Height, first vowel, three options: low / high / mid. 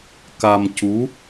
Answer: low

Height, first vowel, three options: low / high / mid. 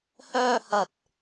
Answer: mid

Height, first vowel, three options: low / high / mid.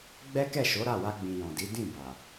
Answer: mid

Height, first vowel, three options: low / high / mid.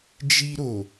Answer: high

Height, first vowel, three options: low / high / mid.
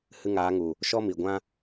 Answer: high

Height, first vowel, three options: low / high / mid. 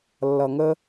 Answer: mid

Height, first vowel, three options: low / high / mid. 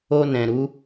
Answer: mid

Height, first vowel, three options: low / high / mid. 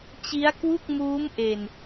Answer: high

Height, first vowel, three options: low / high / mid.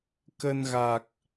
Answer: mid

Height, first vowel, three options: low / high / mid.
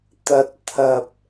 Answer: low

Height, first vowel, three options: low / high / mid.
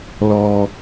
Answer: mid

